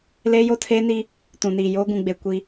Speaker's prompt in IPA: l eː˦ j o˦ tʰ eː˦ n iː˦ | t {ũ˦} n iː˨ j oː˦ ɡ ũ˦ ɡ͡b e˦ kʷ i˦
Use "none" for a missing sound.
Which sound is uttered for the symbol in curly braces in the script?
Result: ũ˨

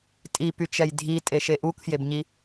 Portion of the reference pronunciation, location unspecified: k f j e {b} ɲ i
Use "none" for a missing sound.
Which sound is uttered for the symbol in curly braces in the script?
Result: b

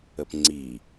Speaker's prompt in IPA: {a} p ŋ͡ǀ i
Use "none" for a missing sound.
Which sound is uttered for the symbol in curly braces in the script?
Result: ə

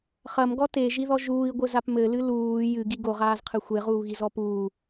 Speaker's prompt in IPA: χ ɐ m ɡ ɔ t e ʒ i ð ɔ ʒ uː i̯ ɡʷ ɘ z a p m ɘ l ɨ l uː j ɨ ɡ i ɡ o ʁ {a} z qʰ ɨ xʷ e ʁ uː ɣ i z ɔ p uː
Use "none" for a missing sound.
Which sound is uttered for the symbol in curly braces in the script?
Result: aː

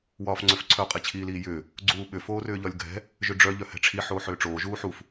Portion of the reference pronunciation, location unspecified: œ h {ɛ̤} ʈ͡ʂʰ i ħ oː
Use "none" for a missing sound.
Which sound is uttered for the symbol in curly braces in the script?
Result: ɛ̤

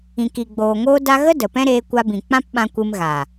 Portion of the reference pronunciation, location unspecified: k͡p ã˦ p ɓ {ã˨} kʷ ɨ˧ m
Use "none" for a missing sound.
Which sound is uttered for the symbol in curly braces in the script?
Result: ã˧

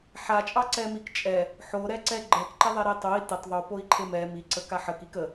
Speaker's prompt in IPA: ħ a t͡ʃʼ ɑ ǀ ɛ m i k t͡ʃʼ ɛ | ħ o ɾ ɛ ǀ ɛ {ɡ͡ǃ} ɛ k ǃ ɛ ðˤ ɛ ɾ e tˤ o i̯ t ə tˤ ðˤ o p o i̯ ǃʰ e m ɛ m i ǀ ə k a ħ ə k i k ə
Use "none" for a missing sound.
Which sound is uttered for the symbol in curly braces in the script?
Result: ɡ͡ǃ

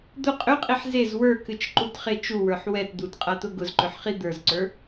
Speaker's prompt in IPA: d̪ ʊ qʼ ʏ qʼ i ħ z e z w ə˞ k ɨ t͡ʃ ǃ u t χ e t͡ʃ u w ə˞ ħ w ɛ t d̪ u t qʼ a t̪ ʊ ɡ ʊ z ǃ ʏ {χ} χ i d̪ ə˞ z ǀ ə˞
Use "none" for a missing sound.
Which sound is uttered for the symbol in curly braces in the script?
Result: ħ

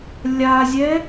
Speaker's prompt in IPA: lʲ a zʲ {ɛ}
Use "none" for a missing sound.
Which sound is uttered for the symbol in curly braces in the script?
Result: ɛ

